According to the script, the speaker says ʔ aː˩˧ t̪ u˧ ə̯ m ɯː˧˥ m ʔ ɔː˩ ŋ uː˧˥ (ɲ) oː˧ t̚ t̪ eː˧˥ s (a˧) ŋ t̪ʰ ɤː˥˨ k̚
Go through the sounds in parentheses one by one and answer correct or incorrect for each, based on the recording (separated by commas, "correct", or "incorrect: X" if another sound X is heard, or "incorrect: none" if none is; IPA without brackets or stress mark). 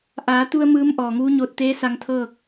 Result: correct, correct